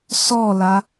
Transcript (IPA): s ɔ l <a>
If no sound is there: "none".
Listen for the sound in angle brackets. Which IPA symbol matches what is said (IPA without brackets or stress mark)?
a